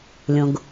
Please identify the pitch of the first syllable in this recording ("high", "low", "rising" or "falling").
low